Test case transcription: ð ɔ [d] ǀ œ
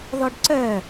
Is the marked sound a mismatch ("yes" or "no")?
yes